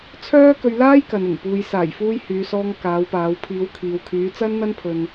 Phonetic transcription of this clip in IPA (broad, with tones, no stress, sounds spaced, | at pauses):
t͡sʰ œː˥ k ɵ˧ ɥ l aː˥ j k ɐ˨ n ɪ˨˩ ŋ p uː˨ j s aː˨˩ j f uː˧ j h yː˨˧ s ɔː˧ ŋ k aː˨˧ w p aː˨˧ w pʰ iː˨˧ w kʰ iː˨ w kʰ yː˨˧ t͡s ɐ˥ n n̪ ɐ˥ n pʰ ɵ˧ n